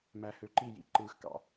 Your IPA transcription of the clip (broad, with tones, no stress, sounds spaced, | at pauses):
m æ˨ h ø˨ ǃ i˦˨ j ḭ˨ ǃ ɯː˨ x k ɑ̰˨